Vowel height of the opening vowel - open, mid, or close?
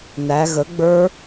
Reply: open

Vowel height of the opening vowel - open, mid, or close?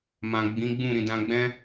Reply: open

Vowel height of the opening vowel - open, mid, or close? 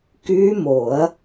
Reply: close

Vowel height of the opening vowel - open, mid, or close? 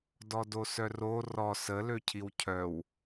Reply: mid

